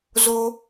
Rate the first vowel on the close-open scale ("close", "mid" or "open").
mid